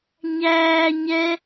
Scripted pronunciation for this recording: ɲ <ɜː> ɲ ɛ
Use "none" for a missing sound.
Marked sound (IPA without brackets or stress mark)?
æː